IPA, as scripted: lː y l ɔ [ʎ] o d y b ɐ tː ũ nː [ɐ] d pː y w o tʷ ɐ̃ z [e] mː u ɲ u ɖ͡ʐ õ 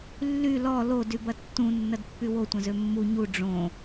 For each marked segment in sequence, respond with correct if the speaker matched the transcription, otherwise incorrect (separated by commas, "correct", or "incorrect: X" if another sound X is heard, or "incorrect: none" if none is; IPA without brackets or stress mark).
incorrect: l, correct, incorrect: ø